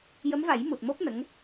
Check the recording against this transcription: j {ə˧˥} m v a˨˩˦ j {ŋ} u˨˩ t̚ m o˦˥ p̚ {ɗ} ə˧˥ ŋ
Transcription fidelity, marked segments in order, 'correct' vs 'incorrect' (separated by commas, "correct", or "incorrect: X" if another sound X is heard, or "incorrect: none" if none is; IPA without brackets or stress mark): correct, incorrect: m, incorrect: n